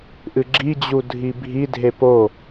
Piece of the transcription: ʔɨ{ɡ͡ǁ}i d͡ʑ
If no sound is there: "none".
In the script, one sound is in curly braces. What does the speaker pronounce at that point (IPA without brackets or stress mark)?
ɡ͡ǁ